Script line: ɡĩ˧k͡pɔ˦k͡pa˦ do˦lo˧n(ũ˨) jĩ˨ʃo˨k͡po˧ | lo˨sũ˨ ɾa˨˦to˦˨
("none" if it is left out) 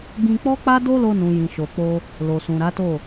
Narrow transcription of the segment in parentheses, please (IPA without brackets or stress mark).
ũ˨